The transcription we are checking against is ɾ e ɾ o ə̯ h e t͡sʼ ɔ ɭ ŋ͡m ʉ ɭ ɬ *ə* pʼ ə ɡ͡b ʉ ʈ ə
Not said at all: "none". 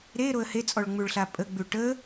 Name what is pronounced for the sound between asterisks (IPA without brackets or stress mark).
a